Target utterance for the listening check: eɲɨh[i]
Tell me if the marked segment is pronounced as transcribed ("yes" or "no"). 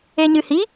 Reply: yes